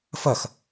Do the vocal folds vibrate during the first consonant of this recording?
no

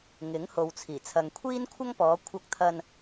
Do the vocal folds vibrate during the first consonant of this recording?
yes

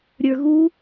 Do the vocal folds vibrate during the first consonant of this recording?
yes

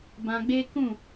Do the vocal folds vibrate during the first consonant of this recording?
yes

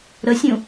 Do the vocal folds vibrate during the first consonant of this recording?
yes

